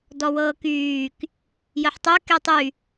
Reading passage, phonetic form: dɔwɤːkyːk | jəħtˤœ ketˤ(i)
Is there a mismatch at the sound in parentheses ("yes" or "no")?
yes